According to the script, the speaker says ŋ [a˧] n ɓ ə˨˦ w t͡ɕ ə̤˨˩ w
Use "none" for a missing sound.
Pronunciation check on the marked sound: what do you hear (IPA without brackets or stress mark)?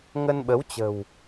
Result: ə˧